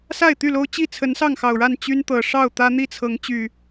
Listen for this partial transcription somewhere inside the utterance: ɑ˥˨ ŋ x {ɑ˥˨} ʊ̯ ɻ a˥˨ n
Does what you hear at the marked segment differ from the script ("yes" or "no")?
yes